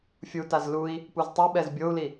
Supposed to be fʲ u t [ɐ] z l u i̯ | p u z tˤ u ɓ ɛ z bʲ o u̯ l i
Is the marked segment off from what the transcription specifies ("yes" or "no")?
yes